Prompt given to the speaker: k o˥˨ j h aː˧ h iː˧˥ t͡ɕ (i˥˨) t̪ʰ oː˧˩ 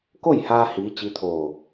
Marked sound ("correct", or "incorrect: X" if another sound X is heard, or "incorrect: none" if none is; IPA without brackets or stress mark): incorrect: i˧˥